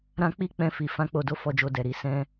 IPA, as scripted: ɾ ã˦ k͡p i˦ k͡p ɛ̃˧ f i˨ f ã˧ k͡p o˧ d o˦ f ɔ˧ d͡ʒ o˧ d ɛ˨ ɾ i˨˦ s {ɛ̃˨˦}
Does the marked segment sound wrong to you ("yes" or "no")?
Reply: yes